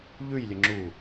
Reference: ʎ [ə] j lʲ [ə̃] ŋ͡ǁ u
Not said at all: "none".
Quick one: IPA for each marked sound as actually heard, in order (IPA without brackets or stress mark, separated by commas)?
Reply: ʉ, ə